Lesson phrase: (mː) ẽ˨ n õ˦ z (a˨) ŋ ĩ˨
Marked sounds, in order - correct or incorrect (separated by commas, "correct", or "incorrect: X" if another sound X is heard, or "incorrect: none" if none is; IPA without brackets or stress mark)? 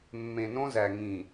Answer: correct, incorrect: æ˨